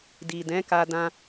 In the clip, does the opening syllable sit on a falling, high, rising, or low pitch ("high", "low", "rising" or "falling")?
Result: low